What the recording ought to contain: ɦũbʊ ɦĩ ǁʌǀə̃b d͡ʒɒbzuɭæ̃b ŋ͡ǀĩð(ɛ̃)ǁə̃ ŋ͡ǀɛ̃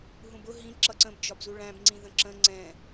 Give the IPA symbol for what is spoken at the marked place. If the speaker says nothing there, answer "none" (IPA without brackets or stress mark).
ə̃